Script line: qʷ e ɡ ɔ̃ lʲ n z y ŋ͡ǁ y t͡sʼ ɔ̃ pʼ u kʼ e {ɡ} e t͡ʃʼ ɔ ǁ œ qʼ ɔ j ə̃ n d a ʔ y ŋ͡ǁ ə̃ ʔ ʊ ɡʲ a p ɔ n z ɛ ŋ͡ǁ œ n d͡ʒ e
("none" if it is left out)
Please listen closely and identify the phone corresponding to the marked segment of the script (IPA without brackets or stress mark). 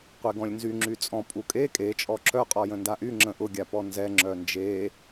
kʼ